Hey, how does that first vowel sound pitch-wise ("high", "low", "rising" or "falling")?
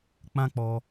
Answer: high